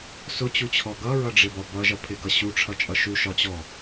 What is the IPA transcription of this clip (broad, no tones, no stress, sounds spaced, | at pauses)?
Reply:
s ʊ t͡ɕ u t͡ɕʰ ɔ ɡ ʌ ɹ ʌ ɖ͡ʐ ɪ b ɒ b ʌ ʒ ʌ pʰ ɪ ɡ ʌ ɕ u ʈ͡ʂʰ ʌ t͡ʃʼ ʌ ʃ u ʃ ɒ t͡ɕ ɔ